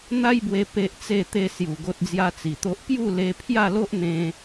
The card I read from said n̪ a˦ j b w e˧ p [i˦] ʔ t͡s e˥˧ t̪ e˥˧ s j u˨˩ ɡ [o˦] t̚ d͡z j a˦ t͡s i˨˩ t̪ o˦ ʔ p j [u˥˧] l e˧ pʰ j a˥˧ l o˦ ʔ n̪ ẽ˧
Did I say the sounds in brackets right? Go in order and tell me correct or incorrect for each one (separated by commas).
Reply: incorrect, correct, correct